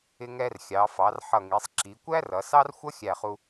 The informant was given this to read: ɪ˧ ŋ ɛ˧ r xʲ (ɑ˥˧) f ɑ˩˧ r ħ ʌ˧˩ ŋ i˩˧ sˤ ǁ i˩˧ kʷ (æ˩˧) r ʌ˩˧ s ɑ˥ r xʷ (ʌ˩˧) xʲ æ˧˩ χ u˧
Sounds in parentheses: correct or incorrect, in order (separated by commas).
incorrect, incorrect, incorrect